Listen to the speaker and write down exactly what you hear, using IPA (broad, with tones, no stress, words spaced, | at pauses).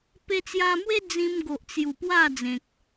pe˧t͡sja˧mwe˦ d͡zĩ˧mɡo˨ʔt͡sju˨˩ pwa˥˧d͡zẽ˨k̚